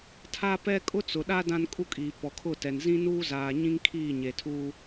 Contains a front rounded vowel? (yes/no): no